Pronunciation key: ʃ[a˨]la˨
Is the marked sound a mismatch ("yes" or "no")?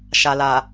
no